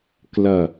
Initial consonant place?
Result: velar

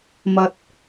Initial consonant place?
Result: labial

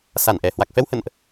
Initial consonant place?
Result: alveolar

